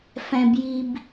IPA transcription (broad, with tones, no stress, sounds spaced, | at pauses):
f ɛ̃˨ b j i˨ b